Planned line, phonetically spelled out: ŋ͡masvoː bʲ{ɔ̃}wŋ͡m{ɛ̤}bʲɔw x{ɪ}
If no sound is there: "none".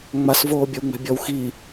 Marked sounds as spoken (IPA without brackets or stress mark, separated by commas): ɔ, ɛ̤, i